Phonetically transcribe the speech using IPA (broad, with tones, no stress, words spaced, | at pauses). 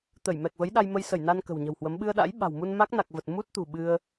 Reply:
t̪ə˧˩j mɛ˨˩k̚və˨˦jɗa˧j mə˧jsə˧˩jna˧n kə̤˨˩wɲə̤˨˩whwə˨˦m ɓɨ˧ə̯ɗa̰˧˥j ɓa̤˨˩wmu˧n ma˦˥k̚na˨˩k̚ və˨˩t̚mu˦˥t̚t̪ṳ˨˩ ɓɨ˧ə̯